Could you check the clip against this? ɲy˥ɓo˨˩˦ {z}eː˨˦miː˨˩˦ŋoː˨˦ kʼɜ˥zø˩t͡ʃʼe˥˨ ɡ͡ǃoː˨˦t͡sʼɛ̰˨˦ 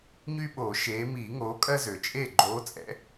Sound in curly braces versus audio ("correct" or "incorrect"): incorrect